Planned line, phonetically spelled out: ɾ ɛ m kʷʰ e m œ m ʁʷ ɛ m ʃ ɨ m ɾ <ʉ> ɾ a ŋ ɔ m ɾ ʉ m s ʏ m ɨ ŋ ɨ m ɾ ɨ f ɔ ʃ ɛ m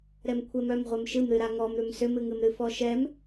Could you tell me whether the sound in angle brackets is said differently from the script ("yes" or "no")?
yes